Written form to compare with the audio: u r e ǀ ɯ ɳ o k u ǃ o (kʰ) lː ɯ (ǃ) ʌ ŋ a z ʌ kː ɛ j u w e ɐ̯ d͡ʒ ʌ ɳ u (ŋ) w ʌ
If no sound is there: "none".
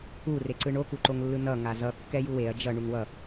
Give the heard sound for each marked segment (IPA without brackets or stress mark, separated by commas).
ŋ, n, ŋ